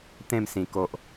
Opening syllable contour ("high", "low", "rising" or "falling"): falling